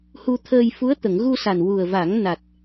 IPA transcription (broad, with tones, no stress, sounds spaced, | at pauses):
h u˧ t̪ʰ əː˧ j f u˧˥ ə̯ t̪ ə˨˩˨ ŋ ɣ u˧ s a˨˩ n w u˨˩ ə̯ v a˨˩˦ ŋ n a˨˩ t̚